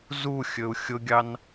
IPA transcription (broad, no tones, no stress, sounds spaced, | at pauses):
z u xʲ ɵ u̯ xʲ ʊ ɡʲ ɑ n